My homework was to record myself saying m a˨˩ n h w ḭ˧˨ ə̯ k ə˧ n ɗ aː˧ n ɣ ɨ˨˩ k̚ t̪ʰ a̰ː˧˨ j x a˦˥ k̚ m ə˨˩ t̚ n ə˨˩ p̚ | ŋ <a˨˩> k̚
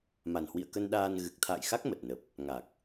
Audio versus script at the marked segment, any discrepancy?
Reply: no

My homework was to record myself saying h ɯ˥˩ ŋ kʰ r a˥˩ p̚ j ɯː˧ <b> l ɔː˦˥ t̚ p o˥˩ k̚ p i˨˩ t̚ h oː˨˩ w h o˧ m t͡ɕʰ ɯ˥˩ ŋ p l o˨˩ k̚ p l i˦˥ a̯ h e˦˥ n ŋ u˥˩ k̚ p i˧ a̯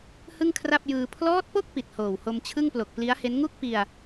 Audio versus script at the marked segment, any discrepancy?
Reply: yes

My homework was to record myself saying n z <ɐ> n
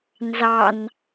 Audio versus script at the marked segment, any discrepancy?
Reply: yes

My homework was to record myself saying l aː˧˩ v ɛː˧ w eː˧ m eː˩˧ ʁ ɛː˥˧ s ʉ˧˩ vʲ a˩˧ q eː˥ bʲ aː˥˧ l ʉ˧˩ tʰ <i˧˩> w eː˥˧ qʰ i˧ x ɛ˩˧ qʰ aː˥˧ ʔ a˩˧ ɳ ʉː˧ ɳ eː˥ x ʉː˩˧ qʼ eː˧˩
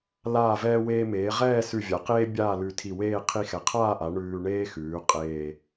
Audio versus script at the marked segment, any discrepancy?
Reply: no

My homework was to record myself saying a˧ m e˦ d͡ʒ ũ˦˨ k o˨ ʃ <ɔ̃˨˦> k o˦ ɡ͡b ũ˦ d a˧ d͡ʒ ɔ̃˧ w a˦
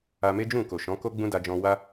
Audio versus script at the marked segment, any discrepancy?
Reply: no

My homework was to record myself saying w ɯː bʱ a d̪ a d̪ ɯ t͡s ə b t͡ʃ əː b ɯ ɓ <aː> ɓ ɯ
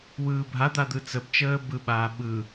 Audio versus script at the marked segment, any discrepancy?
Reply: no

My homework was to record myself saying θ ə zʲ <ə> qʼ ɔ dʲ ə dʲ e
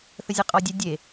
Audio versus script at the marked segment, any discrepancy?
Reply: no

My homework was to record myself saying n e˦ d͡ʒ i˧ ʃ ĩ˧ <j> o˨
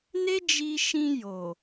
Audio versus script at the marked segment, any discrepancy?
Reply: no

